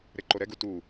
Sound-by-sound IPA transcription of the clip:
ɾ e ǃ o ɾ ɛ ɡ u t u

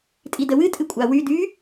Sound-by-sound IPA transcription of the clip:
tʼ i d ə w ɨ tʼ ɨ kʷʼ a w y d y

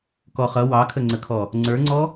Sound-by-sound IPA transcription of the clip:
k ɔ χ ʌ w ɑ kʰ ə ŋ͡ǀ ə kʰ ɔ | ŋ͡ǀ ə˞ ŋ͡ǀ ɔ

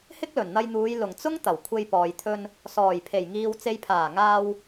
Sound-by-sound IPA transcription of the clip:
h ɪ˥ k̚ l ɵ˨˩ n n̪ ɐ˧ j n̪ uː˨˧ j l ʊ˨˩ ŋ t͡s ʊ˥ ŋ t̪ ɐ˨˩ w kʷʰ e˧ j p ɔː˨ j t̪ʰ ɵ˧ n | s ɔː˨˩ j pʰ e˨˩ j ŋ iː˨ w t͡s e˨ j pʰ aː˨˩ ŋ aː˧ w

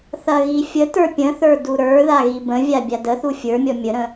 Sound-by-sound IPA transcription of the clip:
θ ɐ ɣ i fʲ ə t ə˞ pʲ ə̃ θ ə˞ d u ɾ ə˞ ð a ɣ i b ə̃ vʲ a bʲ a d ə θ u fʲ ə˞ mʲ ɔ mʲ ə ɾ ə̃

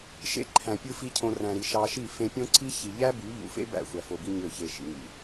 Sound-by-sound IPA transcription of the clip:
ʃ ḛ˧ ǃʰ æ̃˨ pʲ ɯ˧ f i˦ cʰ õ˧ r æ̃˨ ɾ i˨ ʃ ɑ˧ ʃ i˦˨ f ẽ˧ pʲ õ˦ ǀ i˦ ç i˧ ʎ æ˦ b y˨˦ ʎ ṵ˨ f ḛ˦ b æ̰˦˨ xʷ æ˨ f o˨ b i˧ ɲ ø˦˨ ç e˧ ʃ ḭ˨ ŋ ḭ˨

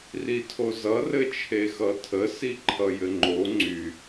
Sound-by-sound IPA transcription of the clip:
r i tʰ o z ʌ r ɘ t͡ʃʰ e x ʌ tʰ ə s i ǃʰ ʌ j ɘ ŋ͡ǃ o ŋ͡ǀ y

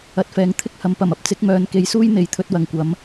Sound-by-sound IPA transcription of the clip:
ɐ˧ t̚ f ɛː˧ ŋ t̪ʰ ɪ˥ k̚ h ɐ˨˧ m p ɐ˨˩ m ɐ˥ p̚ t͡s ɪ˨˥ k̚ m œː˨˧ n k e˨˥ j s uː˥ j n̪ e˨˥ j t̪ʰ ɵ˧ t̚ w ɐ˨ ŋ kʷ ɐ˨˥ m

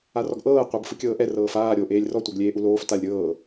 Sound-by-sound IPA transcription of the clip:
a r ɔ ɡ ʔ ɤː qʷ ɤ b f ɯ kʲ ɤː ʔ ɛ r ɤː f aː ɾʲ oː ʔ eː lʲ r ɔ tʷ ɤ ɡ lʲ eː ʔ u l oː f t a lʲ ɾʲ ɤː

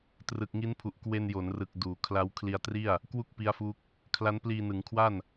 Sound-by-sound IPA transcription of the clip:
t r ɯ˨˩ k̚ ŋ i˦˥ n pʰ u˨˩ ʔ k w e˧ n j o˩˦ n r ɯ˨˩ k̚ d uː˩˦ kʰ l a˦˥ w kʰ l i˧ a̯ t r i˥˩ a̯ | k w u˥˩ k̚ p i˦˥ a̯ f u˦˥ k̚ | kʰ l a˦˥ n p l iː˧ n ɯ˩˦ ŋ kʰ w a˥˩ n

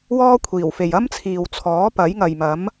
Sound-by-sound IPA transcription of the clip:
w ɔː˥ kʷʰ iː˨˩ w f e˨ j ɐ˥ m t͡sʰ iː˨ w t͡sʰ ɔː˨˥ p ɐ˨˥ j ŋ ɐ˨ j m ɐ˨˥ m

